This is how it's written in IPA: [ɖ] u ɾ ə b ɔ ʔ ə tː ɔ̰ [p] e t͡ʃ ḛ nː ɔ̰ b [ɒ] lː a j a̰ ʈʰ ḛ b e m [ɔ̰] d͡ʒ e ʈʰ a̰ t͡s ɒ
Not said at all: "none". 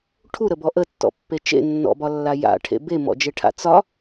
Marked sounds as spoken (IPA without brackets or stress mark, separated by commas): ʈʰ, pː, ɒ, ɔ̰